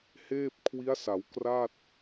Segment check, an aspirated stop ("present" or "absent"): present